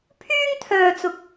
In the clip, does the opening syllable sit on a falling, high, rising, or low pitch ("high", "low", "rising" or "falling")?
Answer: high